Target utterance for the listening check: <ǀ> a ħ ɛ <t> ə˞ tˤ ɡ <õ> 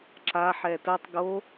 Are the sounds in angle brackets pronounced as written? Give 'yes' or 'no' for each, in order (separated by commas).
no, yes, no